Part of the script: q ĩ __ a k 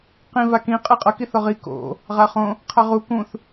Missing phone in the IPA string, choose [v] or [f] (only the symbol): v